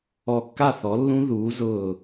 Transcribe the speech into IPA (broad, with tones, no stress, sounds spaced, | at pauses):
ɔ˧˩ kː a˥˨ θ ɔ˩˥ lː ũ˦˥ ð uː˩˥ z ʊː˧˩